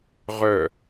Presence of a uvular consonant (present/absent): present